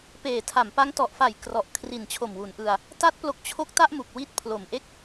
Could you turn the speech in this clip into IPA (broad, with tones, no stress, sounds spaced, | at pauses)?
p eː˨˩ tʰ a˩˦ m p a˦˥ ŋ t ɔ˨˩ ʔ f a˨˩ j k r ɔ˨˩ ʔ kʰ r i˨˩ n t͡ɕʰ o˨˩ m w u˩˦ n ʔ ɯ˧ a̯ | t a˦˥ t̚ p l o˦˥ k̚ t͡ɕʰ o˥˩ k̚ t a˥˩ ʔ m u˨˩ k̚ w i˦˥ t̚ pʰ l o˨˩ m ʔ e˥˩ k̚